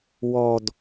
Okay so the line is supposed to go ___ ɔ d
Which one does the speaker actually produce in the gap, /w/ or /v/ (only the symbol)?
w